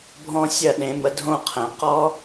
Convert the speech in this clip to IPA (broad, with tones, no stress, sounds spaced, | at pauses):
bʱ ɔ̃˦˥ sʲ ɐ˥˨ ɗ ẽ˩˥ m ə˩˥ dʱ õ˥˨ qʰ ɛ̃˩˧ q ɔ˦˥